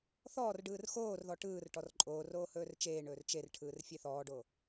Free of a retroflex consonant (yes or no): no